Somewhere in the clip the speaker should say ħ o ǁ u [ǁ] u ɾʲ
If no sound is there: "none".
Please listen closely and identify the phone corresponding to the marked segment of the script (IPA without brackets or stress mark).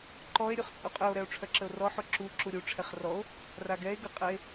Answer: ǁ